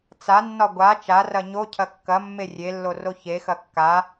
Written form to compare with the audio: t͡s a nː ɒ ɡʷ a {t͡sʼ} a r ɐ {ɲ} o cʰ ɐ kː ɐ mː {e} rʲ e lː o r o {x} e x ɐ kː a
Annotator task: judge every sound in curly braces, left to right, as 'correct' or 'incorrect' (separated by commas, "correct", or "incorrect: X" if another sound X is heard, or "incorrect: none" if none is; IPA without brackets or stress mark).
incorrect: t͡ʃ, correct, correct, incorrect: ç